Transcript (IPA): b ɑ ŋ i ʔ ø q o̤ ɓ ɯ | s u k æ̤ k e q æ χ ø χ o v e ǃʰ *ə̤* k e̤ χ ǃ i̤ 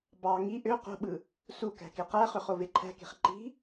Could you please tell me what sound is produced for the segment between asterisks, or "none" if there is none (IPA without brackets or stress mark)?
æ̤